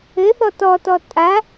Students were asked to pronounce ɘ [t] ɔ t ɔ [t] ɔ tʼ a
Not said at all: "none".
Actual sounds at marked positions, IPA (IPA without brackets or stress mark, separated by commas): θ, t